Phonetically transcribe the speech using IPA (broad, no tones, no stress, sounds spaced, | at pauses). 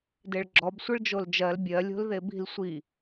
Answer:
d e ɭ ɡ͡ǁ ɔ b sʷ ɯ ɭ d͡ʒ o l d͡ʒ ɜ l bʲ ɜ lʲ o̤ l ð e b i̤ l sʷ i